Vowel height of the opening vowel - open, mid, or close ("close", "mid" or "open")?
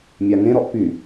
open